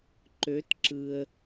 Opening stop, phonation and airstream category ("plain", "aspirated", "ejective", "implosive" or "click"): click